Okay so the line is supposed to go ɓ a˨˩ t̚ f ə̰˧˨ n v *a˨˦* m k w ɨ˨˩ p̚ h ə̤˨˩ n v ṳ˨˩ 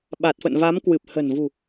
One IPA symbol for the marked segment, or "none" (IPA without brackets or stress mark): a˨˦